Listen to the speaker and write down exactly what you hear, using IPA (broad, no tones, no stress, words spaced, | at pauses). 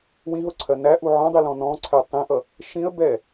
wĩɦʊǀʰɜ næʔu ʕɔ̃dˤilɔ̃ nɔ̃ǀʰɛ tˤĩʔʌ | ʃĩə̯bɛ